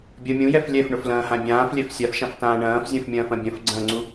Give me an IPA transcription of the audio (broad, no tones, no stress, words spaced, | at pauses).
bʲɐ mʲũjɛf lʲɛfɳʊflɐ̃ːhã bʲãːflʲɛf sʲafʃãftãː ɳɐ̃ːfzʲɐ̃fmʲɐ̃ːfɐ̃ bʲɐ̃fɡ͡ǀɐ̃ːŋ͡ǀu